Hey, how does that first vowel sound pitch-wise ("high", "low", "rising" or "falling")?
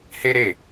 high